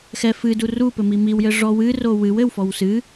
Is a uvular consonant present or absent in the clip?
absent